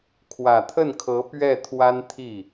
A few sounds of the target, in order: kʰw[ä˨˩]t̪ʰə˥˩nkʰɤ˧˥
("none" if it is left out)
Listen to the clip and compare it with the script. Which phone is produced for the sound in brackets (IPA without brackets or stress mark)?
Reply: ä˨˩